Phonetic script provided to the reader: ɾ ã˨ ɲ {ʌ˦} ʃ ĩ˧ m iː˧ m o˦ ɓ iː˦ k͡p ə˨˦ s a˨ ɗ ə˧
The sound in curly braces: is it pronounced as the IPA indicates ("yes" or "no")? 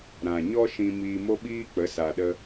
no